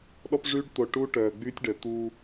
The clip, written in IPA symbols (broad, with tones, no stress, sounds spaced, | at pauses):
ɗ ɔ˦ p ʐ yː˦ ɖ t̪ o˨ ʈ u˦ ʈ œː˨ ɡ͡b yː˦ tʲ ɖ œ˨ t̪ uː˦